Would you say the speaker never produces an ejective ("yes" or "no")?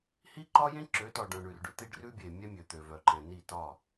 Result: yes